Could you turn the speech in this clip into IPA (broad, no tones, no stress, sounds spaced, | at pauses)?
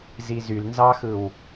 z i z y l n z ɑ x ɯ w